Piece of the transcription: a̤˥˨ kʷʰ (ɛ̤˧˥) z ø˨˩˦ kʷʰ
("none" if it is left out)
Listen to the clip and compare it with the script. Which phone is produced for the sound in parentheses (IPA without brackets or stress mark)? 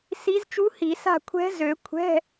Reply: ɛ̤˧˥